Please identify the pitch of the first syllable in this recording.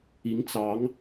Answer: rising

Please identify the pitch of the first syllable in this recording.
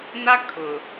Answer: high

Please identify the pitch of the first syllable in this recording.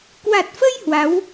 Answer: low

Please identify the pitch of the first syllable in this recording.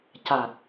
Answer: low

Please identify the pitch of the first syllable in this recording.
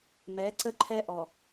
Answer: rising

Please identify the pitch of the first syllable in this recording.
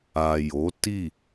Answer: low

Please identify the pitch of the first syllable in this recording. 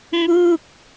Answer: falling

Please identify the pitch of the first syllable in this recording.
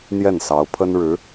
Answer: falling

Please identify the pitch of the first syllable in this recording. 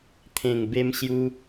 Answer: low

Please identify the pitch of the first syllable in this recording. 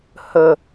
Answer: low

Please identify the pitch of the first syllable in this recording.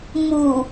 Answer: low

